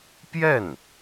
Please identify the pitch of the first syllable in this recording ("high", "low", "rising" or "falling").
falling